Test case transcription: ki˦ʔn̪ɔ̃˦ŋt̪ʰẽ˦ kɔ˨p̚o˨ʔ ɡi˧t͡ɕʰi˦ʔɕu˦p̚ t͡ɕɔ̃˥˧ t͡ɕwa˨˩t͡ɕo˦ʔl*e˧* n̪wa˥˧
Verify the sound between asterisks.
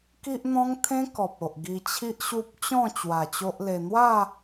correct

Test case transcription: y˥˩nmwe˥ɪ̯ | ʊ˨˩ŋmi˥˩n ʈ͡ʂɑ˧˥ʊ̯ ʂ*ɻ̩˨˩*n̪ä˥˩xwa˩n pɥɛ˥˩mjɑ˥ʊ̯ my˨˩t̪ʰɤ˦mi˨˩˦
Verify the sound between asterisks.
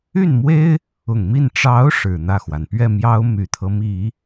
correct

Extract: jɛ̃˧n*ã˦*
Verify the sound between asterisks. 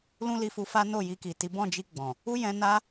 incorrect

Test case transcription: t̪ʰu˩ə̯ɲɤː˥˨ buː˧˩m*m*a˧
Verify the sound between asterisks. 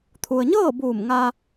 incorrect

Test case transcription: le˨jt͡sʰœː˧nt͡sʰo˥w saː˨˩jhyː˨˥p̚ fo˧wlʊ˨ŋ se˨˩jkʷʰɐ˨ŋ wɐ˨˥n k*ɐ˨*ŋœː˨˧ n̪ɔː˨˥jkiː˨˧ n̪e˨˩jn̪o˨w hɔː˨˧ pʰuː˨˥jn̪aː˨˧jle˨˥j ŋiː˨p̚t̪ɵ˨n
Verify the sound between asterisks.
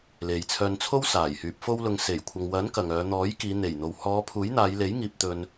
correct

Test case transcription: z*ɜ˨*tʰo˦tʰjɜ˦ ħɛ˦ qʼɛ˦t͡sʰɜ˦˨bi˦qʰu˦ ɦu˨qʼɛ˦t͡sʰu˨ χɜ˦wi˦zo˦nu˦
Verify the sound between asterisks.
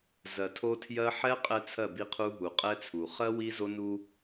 correct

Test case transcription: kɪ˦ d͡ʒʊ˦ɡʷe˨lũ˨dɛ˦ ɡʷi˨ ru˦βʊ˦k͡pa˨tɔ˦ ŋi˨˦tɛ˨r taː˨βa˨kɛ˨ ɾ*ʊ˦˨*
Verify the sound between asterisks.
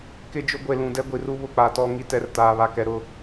correct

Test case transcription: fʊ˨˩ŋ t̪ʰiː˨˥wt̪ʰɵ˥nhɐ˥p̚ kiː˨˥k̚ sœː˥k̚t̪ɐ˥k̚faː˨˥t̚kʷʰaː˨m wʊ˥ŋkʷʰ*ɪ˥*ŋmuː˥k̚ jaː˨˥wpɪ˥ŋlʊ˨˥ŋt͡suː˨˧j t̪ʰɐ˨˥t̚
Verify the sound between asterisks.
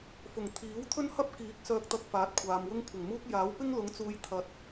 incorrect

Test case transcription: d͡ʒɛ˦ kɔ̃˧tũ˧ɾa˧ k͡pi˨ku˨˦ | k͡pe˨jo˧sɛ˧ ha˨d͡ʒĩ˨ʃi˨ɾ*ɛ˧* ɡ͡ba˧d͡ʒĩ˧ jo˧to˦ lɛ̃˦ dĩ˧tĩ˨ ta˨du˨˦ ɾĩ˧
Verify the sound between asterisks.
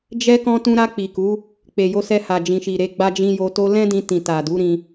incorrect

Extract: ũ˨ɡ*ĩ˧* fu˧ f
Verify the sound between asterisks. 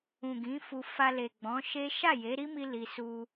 incorrect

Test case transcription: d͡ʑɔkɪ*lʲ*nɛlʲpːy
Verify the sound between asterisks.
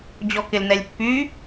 incorrect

